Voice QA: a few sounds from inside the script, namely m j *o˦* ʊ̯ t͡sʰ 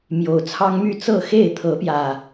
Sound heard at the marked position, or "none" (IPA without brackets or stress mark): o˨˩